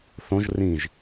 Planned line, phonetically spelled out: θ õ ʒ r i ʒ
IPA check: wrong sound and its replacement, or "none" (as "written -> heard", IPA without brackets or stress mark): i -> ĩ